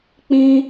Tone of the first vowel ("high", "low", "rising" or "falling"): high